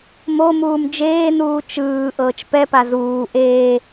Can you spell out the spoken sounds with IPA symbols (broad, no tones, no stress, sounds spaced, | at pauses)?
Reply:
m o m uː m d͡ʒ eː n uː t͡ʃ ɯː ʔ ɤː t͡ʃ p ɛ p a z uː ʔ eː